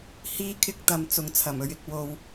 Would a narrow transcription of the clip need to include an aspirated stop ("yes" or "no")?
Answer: yes